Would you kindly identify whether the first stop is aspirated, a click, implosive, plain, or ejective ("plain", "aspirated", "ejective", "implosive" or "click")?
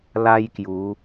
plain